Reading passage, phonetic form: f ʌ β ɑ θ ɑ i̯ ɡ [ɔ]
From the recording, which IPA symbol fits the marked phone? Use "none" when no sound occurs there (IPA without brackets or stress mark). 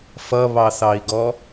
ɔ